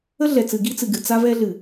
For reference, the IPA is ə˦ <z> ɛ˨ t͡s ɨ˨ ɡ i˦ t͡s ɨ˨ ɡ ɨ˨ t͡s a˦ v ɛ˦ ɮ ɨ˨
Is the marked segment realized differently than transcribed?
yes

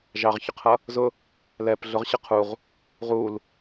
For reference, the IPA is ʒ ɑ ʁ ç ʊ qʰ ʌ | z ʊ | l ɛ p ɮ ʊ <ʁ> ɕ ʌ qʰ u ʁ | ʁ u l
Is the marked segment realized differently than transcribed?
no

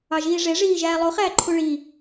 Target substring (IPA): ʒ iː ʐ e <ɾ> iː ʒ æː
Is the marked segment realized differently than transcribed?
yes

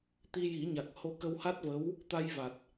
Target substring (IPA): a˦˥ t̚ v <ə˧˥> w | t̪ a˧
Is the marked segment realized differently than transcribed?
no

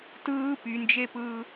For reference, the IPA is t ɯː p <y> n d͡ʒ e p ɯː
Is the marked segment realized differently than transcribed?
no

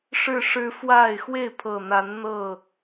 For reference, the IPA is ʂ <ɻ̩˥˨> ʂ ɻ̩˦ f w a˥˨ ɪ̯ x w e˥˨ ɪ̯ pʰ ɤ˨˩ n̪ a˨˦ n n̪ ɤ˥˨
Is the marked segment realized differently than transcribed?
no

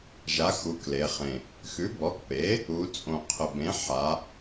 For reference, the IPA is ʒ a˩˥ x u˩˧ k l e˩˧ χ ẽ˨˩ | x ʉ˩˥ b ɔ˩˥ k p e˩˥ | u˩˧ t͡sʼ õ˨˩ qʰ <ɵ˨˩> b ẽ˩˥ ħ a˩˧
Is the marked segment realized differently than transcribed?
yes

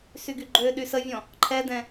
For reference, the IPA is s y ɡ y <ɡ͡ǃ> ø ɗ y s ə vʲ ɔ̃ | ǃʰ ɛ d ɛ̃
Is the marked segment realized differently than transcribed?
no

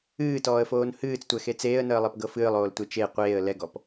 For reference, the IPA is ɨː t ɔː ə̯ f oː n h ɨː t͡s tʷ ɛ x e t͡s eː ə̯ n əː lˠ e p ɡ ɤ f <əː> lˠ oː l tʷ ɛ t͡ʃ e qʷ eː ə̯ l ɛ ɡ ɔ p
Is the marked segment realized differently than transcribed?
yes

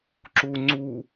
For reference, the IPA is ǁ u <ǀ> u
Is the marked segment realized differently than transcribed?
yes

